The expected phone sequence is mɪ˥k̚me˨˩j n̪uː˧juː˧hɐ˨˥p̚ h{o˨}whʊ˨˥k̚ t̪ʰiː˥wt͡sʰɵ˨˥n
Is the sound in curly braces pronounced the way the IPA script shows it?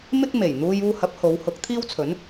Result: no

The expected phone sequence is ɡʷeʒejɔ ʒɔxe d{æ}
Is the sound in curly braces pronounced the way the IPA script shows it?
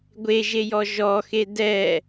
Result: no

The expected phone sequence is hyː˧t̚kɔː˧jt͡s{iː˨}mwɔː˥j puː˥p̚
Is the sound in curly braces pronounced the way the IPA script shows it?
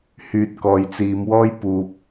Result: no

